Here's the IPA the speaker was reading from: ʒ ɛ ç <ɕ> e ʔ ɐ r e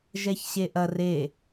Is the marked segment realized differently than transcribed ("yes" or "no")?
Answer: no